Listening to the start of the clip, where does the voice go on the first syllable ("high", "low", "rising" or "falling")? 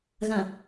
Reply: low